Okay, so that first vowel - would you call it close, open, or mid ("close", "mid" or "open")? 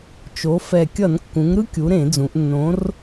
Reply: mid